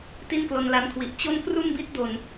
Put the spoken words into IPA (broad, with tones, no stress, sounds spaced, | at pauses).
t i˥˩ n k l o˧ n l a˦˥ n kʰ w i˨˩ ʔ t͡ɕ o˥˩ n k r u˥˩ n b i˦˥ t̚ d o˨˩ n